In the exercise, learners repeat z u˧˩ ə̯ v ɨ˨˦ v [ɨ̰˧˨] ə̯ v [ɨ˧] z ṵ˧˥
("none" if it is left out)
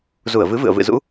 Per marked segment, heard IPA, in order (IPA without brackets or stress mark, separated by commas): ɨ̰˧˨, ɨ̰˧˨